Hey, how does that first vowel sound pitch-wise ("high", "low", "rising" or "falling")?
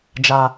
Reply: low